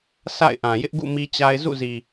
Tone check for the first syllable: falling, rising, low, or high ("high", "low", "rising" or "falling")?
falling